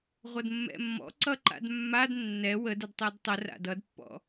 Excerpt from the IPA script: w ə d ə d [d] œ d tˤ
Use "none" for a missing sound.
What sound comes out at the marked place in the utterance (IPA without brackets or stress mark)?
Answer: tˤ